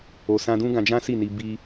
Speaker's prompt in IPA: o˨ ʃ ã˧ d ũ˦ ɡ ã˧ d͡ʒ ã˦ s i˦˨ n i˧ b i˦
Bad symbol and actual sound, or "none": ʃ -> s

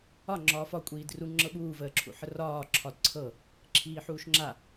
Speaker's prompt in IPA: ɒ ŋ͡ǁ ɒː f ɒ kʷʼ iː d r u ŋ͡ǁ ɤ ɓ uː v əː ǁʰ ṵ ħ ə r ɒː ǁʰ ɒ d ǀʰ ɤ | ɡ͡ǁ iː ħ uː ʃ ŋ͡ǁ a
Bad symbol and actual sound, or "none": ɡ͡ǁ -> ǁʰ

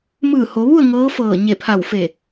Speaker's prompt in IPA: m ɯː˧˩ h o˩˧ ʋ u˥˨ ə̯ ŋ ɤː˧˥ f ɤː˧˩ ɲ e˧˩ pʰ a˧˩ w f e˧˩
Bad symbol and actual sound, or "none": none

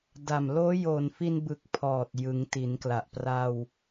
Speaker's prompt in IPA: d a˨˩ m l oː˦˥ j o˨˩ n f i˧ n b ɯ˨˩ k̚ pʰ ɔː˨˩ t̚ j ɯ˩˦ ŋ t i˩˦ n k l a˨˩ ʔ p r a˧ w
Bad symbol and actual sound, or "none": none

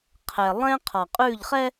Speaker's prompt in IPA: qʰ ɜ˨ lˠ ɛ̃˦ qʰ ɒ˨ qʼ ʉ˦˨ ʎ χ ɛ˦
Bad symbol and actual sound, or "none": ɜ˨ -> ɛ˨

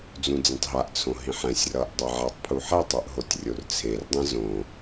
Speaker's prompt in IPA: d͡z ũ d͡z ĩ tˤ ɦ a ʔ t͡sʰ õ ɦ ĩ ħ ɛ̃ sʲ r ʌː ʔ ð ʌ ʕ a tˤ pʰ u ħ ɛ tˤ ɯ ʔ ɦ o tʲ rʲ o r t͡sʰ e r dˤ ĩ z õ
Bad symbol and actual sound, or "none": ð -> dˤ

